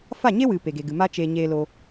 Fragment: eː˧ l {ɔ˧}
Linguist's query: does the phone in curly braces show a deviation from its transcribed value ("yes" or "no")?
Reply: yes